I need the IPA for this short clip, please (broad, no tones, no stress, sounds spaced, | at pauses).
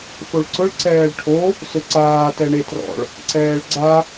f o ɭ ǀ ʊ ɭ ǀ ɛː ɭ ʈʰ o | s ʊ ǀ aː t ɛ ɳ e t r ɔ̰ ɭ | ǀ ɛː ɭ ɡ͡ǀ a